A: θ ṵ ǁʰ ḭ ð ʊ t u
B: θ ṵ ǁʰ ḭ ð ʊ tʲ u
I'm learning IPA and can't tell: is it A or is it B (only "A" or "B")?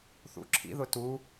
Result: A